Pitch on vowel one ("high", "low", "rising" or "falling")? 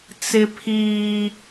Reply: high